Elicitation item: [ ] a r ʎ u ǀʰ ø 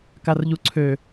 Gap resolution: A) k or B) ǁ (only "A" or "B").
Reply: A